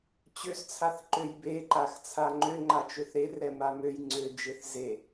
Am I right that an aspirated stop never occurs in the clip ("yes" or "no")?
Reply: no